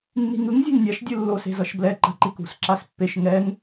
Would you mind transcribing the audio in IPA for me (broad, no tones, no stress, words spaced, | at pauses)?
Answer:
nːi̤ŋɯŋ zʲe̤ŋnʲaʃ dʲɯlːos e̤zʌʃblɛ ǃa̤ǃikṳs ǁaspːeʃ ŋɛŋ